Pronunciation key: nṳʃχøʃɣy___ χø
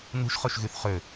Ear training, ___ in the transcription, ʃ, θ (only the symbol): θ